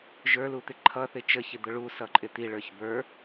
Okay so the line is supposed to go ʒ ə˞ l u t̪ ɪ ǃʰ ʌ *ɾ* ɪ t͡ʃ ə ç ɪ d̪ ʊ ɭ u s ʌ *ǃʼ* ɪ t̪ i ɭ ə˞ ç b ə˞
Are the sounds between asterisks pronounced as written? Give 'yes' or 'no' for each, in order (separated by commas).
no, yes